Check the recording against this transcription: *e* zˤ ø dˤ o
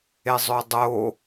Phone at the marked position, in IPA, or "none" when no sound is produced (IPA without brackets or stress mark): e